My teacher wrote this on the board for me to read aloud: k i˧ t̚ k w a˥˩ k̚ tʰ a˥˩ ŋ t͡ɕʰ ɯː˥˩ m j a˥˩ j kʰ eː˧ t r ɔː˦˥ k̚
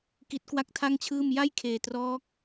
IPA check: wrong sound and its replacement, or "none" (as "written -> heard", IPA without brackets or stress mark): i˧ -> i˦˥